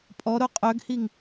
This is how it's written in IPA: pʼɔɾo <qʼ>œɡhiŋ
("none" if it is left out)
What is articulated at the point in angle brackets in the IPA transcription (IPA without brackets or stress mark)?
qʼ